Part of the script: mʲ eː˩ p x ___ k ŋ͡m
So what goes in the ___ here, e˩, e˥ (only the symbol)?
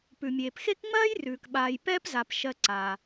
e˥